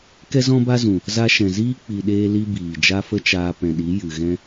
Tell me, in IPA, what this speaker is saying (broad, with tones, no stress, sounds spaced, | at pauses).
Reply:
k ɛ˦ z ɔ̃˦ b a˦ z ũ˨ | z a˧ ʃ ɛ̃˨ z iː˦ k͡p i˨ ɗ eː˧ l i˧ b iː˨ d͡ʒ a˦ f ə˦ t͡ʃ aː˧ p ɛ̃˨ ɗ i˨˦ j ɨ˨ ɣ ɛ̃˦